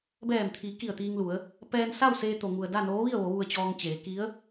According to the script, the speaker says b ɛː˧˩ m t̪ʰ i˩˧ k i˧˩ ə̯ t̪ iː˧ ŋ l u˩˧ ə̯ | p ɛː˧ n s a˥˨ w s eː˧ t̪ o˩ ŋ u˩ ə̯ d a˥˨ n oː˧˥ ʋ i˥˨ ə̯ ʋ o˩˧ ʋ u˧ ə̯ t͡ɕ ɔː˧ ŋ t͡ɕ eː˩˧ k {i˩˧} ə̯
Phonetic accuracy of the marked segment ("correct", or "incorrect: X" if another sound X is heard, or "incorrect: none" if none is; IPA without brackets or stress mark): incorrect: i˧˥